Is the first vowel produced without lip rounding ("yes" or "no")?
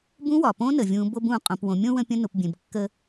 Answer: no